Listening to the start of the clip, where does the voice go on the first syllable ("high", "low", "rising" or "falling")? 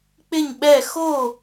falling